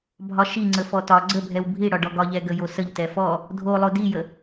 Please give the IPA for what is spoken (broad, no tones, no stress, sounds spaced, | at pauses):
bʱ ɒ ʃ i ŋ͡ǀ ə f ɔ t ɒ ɡ͡ǀ ə bʱ ɛ w bʱ i ɽ ɒ ɖ ɔ ɡ ɒ ʎ ɛ ɡ ə j o s ə ʎ t ɛ f ɔ | dʱ o lˠ o d i j ə